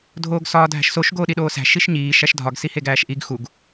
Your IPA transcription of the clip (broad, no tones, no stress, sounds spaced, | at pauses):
dʱ oː ɡ s ɒː dʱ æ̤ ʃ s o ʃ ɡ oː ɗ i ɗ oː s æ̤ ʃ i ʃ ɲ iː ʃ æ ʃ dʱ ɒ ɡ s i h e ɡ æː ʃ ʔ i ɡ x u ɡ